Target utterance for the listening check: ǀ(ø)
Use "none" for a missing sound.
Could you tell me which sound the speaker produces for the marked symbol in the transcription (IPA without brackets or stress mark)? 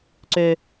ø